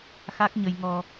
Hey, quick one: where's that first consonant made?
velum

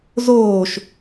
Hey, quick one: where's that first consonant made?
tongue tip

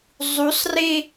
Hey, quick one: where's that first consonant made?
tongue tip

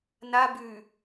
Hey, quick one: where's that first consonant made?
tongue tip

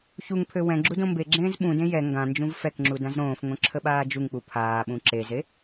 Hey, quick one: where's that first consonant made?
palate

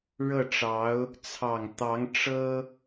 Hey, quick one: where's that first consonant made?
retroflex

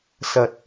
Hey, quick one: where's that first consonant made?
tongue tip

